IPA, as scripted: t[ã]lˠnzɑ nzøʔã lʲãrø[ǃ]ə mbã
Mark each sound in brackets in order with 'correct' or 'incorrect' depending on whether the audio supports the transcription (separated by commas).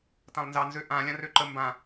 correct, correct